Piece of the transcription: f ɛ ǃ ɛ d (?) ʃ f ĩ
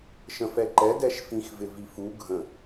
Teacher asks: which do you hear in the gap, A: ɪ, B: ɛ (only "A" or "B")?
B